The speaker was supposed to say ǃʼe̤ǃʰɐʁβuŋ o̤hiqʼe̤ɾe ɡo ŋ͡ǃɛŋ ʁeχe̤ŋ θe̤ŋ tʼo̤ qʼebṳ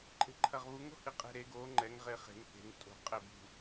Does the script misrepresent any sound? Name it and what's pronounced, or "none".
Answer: none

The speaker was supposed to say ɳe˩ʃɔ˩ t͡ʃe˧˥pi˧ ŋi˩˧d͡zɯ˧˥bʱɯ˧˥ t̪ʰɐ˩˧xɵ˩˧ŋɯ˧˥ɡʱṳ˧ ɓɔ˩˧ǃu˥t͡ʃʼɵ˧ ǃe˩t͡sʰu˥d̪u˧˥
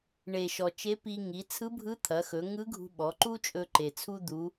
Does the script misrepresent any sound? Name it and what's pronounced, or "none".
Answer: d͡z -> t͡sʰ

